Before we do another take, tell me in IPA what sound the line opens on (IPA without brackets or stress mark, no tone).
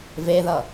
v